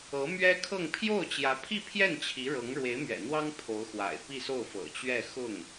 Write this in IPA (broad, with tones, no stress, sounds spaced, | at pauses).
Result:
ɤ˧˥ m ɥ ɛ˥ kʰ ɤ˥˧ ŋ pʰ j o˥˩ ʊ̯ t͡ɕ j ä˧˥ pʰ i˥˧ pʰ j ɛ˥˩ n t͡ɕʰ i˧˥ ɻ ɤ˧˥ ŋ ɻ w e˧˥ ɪ̯ m ɥ ɛ̰˨˩ n̪ w ɑ˥ ŋ pʰ o˧˥ ʊ̯ x w a̰˨˩ ɪ̯ p i˥˧ s o˥˩ ʊ̯ f ɤ̰˨˩ t͡ɕ ɥ ɛ˥˧ x ʊ˥˩ ŋ